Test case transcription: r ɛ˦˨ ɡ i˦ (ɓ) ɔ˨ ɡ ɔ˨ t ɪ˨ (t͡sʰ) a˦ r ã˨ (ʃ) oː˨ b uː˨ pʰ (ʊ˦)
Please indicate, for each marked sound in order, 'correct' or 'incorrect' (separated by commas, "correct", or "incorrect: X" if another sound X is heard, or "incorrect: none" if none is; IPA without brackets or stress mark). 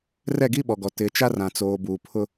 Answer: correct, incorrect: t͡ʃ, incorrect: t͡s, correct